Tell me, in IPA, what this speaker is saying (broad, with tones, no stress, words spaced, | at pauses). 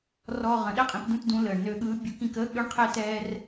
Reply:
rɔː˧ʁə̃˩˧ɗɛ˥ qʼĩ˧˥pdũ˥tdũ˧˥ ləː˩ɳ nø˧ɠɯː˧˥bʲu˧˥k ĩ˧kəː˥ ɠø˥ɳ qʰɛ˥ tɛː˥r